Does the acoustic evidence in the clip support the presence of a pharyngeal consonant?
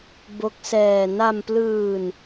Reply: no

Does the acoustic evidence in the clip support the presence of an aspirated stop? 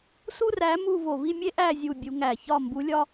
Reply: no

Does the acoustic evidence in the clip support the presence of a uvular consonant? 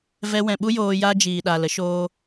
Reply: no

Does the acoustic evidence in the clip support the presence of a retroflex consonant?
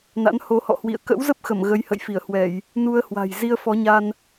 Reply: no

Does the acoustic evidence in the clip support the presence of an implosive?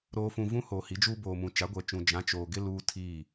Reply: no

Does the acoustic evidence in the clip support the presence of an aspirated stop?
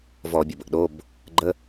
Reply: no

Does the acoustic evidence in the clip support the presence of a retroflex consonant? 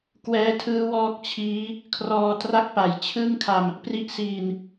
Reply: no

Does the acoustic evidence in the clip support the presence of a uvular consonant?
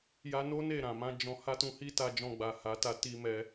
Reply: no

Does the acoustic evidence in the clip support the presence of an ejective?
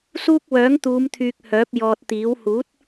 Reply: no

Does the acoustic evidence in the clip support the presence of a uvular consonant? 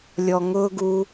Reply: no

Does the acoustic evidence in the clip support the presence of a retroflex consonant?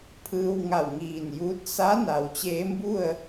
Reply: no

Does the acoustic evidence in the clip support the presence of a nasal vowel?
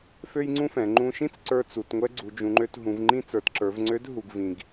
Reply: yes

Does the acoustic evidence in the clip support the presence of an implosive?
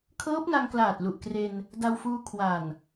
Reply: no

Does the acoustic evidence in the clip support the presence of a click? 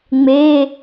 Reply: no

